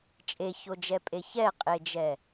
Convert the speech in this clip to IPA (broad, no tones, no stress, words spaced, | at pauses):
t͡ʃʼeçod͡ʒɛpʼe çɛqʼed͡ʒɛ